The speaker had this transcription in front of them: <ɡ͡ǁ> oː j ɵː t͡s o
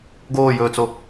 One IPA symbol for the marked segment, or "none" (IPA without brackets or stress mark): ɡ